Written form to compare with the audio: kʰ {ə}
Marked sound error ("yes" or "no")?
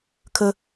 no